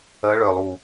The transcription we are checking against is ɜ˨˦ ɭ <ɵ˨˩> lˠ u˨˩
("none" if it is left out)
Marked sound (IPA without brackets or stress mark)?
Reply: œ˨˩